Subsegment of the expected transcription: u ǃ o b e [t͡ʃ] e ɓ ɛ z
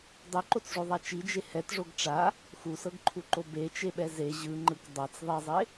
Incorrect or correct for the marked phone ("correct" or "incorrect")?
correct